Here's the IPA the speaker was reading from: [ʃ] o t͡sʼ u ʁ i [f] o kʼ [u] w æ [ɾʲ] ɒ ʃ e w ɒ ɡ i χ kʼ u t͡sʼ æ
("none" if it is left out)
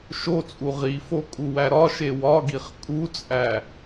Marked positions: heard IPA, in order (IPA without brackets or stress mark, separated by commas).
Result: ʃ, f, u, ɾ